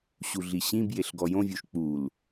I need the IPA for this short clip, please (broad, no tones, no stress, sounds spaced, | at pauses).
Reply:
ɕ u ɮ i ɕ ĩ b j e ɬ ɡ ɔ j õ vʲ u ʃ k͡p u l